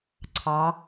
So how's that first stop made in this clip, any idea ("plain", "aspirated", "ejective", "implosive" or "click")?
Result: click